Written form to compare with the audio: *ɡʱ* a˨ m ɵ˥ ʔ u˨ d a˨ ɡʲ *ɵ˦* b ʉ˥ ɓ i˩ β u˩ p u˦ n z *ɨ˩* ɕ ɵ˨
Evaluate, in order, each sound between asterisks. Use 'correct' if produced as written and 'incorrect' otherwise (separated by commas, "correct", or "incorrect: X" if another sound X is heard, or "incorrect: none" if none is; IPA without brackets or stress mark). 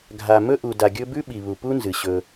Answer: correct, correct, correct